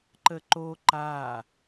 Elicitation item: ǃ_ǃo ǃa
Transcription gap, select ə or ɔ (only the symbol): ə